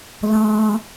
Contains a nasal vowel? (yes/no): yes